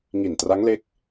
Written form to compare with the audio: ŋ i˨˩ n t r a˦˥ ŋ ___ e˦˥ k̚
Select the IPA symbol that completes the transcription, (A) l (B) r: A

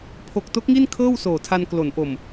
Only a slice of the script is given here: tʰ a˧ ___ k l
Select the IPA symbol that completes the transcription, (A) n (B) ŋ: A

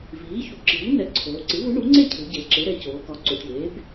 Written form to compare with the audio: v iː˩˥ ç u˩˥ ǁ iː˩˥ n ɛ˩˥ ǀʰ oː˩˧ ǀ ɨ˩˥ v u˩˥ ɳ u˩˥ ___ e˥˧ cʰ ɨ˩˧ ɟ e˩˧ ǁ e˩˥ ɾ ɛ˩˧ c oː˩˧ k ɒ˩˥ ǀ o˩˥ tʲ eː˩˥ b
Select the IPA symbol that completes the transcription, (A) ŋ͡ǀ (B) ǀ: A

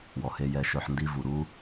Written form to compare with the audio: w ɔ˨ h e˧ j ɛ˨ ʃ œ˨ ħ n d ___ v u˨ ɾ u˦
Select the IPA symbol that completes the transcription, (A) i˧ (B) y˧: A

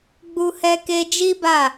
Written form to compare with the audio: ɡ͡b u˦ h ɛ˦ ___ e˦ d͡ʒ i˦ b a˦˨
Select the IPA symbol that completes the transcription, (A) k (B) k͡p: A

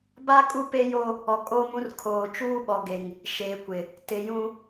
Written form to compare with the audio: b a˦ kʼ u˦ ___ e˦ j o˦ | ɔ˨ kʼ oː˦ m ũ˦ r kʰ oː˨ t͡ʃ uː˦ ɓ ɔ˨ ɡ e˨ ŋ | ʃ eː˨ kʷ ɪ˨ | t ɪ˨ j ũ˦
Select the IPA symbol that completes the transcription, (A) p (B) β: A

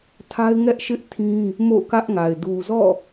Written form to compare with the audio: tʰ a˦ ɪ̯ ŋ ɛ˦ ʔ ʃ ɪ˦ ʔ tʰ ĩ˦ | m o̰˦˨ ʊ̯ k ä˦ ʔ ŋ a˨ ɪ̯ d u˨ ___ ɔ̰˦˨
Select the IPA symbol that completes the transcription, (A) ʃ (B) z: B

